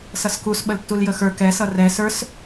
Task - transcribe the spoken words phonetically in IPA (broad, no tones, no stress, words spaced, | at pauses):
sʌskus ɓəltːuljəxə˞ kɛsʌ rɛ sə˞s